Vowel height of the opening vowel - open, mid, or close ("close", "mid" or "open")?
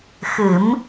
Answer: close